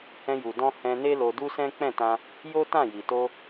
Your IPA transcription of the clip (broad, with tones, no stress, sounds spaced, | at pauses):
h ɛ̃˧ j u˨ d ɔ̃˧ h ɛ̃˧ n e˦ l o˧ d u˦ s ɛ̃˦ k͡p ɛ̃˦˨ t ã˧ | j o˦ t ã˦˨ j i˨ t o˧